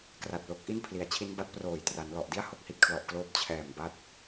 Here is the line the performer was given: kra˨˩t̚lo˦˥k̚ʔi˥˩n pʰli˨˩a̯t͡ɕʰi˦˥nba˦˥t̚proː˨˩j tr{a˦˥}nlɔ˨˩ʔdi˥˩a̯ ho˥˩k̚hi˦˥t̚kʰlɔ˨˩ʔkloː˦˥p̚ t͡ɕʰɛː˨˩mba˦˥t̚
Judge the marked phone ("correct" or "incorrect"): incorrect